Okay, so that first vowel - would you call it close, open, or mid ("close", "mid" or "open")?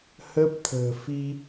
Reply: mid